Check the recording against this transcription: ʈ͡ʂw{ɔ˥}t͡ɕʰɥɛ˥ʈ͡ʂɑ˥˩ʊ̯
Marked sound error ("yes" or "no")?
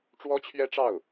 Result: no